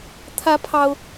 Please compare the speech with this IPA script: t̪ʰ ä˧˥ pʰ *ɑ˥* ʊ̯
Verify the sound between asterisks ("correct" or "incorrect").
correct